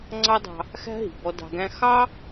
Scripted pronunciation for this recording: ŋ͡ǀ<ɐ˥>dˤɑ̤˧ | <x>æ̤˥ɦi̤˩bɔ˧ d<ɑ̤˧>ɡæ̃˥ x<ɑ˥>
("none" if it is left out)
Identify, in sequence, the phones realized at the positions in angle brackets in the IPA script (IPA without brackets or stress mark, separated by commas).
ɑ˥, x, ɑ̤˧, ɑ˥